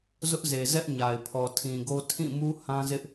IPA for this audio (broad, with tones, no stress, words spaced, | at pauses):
zʊ˦ʔze˨zɛ˦ʔ ɲa˨ɪ̯pʰɔ˨tʰĩ˨ɡo˦ tʰĩ˦˨mu˦ hã˦zɪ˦ʔ